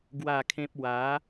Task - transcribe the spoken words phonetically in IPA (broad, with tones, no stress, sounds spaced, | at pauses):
ɡ w a˥˧ kʰ ẽ˦ p̚ w a˨˦